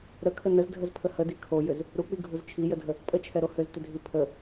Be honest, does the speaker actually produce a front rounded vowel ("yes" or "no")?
yes